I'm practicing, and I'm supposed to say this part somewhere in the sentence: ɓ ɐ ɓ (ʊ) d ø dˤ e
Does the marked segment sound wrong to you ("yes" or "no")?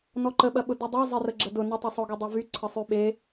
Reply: no